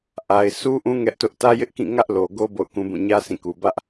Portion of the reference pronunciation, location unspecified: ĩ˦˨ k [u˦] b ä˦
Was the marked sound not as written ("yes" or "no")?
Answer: yes